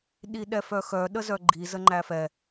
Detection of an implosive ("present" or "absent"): present